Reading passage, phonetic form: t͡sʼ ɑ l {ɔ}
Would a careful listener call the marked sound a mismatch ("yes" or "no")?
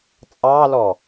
no